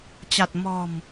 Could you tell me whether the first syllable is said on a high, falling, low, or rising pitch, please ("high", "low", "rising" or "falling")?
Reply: low